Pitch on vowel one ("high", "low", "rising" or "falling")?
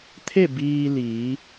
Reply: falling